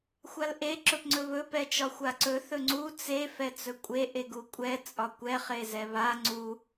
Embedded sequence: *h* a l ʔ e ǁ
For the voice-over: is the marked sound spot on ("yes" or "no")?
no